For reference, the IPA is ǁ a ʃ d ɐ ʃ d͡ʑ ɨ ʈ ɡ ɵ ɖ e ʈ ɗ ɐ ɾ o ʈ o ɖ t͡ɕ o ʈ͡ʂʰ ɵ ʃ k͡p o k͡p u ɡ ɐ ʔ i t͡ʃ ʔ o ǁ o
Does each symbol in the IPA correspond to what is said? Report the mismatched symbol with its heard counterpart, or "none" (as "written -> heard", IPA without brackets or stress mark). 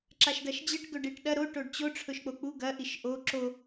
t͡ʃ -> ʃ